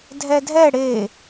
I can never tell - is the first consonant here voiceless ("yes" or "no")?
no